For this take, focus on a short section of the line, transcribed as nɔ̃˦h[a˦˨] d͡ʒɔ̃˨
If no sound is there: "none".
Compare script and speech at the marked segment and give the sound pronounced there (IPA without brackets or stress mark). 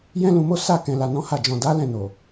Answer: a˦˨